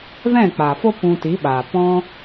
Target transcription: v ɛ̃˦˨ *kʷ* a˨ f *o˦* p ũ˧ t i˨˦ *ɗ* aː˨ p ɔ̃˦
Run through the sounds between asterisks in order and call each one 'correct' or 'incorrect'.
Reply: incorrect, correct, incorrect

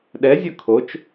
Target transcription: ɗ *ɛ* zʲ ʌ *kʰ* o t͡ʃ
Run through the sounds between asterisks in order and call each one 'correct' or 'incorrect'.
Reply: correct, correct

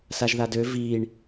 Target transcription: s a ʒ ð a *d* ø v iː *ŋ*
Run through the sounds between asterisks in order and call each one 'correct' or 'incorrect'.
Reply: correct, incorrect

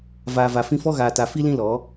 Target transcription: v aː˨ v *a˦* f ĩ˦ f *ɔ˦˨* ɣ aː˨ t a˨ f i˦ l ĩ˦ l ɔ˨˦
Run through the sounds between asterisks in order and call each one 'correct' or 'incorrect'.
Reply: incorrect, incorrect

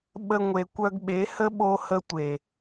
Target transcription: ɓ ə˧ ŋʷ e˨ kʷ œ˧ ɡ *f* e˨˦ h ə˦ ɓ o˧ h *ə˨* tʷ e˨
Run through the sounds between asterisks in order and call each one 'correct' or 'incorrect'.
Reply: incorrect, incorrect

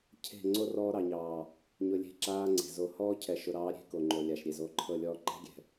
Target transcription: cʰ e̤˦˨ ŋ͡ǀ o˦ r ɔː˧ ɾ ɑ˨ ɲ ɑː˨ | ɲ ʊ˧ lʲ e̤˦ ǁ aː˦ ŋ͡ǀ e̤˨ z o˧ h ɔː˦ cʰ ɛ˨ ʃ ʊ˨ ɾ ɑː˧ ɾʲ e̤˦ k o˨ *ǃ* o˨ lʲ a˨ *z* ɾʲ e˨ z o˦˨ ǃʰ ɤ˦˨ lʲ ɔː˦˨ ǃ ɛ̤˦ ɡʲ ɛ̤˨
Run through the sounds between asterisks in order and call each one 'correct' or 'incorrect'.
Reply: incorrect, incorrect

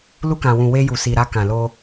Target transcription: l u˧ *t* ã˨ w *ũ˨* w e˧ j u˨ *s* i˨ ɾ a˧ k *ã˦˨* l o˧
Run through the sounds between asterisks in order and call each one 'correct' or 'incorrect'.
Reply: incorrect, correct, correct, incorrect

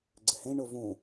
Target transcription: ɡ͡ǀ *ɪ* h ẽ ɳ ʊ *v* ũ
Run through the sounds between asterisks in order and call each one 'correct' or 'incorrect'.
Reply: correct, correct

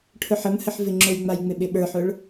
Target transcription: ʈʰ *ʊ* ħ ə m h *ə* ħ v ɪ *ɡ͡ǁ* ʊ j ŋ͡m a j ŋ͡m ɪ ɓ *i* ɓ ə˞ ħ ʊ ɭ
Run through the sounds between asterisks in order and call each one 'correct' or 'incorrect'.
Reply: correct, correct, incorrect, incorrect

